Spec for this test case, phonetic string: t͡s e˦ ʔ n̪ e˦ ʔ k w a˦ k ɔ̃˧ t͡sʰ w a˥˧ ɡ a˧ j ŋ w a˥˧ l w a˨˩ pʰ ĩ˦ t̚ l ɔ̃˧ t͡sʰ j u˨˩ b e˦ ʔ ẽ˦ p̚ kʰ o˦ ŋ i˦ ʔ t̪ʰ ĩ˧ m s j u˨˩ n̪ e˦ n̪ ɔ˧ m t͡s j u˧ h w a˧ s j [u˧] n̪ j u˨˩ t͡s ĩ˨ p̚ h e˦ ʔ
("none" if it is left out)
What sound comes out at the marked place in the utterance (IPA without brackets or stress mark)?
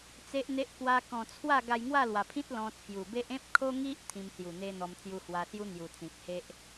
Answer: u˦